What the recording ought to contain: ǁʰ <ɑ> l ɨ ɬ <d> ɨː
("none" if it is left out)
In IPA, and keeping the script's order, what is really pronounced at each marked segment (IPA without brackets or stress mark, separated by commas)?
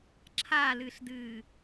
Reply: a, d